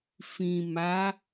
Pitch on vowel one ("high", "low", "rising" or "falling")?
low